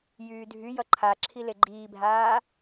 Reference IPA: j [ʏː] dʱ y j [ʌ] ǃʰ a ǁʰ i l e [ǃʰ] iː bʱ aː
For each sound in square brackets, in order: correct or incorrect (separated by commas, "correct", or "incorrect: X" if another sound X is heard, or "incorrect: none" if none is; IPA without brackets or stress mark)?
incorrect: yː, correct, incorrect: ɡ͡ǃ